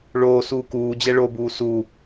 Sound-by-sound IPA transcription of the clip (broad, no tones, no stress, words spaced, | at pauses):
ɭoː suːkuːd͡ʑɛ ɭobuː su